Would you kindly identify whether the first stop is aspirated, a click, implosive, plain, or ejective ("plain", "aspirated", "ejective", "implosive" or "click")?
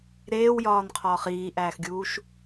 aspirated